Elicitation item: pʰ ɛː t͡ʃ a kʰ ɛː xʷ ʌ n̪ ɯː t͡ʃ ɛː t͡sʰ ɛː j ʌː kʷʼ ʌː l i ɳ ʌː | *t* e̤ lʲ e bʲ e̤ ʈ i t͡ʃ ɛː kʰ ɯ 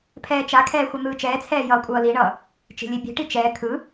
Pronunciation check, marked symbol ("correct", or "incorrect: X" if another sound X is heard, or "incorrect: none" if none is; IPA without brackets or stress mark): incorrect: t͡ʃ